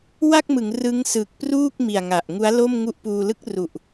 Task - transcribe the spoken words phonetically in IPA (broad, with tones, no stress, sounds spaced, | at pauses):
w a˥˩ k̚ m ɯ˩˦ ŋ r ɯ˦˥ ŋ s ɯ˨˩ k̚ p r uː˥˩ k̚ m i˨˩ a̯ ŋ a˨˩ ʔ ŋ u˦˥ a̯ l o˥˩ m ŋ u˦˥ ʔ p uː˧ l ɯ˦˥ k̚ r u˨˩ ʔ